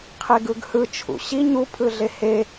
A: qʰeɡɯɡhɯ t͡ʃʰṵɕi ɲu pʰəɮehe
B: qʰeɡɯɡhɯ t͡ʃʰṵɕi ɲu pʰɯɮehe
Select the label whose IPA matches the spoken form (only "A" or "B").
B